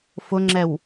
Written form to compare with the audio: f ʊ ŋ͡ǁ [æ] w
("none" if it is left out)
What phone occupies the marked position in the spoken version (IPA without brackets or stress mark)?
ɛ